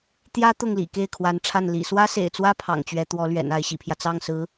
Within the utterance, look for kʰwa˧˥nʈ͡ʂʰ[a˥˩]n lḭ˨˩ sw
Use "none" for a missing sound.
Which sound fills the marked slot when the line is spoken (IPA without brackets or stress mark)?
a˥˩